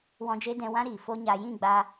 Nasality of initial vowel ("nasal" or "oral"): nasal